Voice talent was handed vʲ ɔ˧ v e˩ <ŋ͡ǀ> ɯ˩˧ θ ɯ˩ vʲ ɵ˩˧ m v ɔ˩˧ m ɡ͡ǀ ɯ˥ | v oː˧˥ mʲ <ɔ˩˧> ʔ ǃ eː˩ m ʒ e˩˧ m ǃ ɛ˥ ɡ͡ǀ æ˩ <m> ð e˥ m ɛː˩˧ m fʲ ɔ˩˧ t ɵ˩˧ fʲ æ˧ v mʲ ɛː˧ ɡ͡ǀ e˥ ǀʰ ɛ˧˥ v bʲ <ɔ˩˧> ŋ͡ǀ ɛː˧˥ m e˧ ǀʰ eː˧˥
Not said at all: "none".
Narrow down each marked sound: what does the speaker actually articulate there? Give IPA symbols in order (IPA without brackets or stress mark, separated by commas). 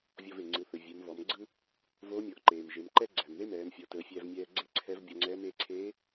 ŋ͡ǀ, ɔ˩˧, m, ɔ˧